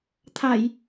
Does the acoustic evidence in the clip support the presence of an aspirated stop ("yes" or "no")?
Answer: yes